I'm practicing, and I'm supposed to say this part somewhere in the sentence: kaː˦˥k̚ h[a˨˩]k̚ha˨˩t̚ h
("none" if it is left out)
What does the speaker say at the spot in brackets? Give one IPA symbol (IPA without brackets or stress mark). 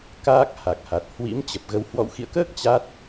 a˨˩